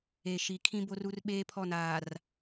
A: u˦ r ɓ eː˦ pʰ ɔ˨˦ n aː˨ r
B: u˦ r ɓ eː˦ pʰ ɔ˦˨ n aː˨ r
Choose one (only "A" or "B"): B